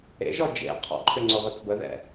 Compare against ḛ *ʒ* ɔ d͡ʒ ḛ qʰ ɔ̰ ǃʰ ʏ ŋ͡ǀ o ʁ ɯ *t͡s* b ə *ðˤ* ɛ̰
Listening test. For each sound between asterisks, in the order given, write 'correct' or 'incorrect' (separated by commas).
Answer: correct, correct, incorrect